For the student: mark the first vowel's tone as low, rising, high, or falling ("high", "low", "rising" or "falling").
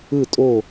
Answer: falling